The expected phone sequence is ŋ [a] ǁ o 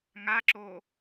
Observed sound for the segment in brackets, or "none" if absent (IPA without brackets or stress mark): a